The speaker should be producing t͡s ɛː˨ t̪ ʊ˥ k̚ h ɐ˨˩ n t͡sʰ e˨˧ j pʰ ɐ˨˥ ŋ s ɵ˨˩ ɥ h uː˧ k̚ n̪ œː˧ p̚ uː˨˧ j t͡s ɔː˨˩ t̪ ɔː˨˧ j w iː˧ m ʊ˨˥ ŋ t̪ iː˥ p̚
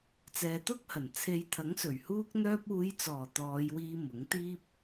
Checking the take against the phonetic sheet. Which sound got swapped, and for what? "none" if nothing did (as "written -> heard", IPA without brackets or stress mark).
pʰ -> t̪ʰ